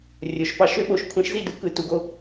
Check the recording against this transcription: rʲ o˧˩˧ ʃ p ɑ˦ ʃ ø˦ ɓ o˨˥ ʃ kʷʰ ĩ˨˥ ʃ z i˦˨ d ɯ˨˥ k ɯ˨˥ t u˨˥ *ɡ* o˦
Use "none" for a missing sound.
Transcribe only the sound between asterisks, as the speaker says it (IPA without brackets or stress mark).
ɡ